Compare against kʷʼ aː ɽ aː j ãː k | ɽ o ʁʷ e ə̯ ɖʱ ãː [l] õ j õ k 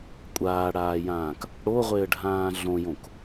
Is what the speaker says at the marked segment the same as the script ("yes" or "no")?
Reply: no